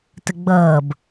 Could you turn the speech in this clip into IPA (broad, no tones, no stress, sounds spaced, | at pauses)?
t ə ɡ͡b ʌː b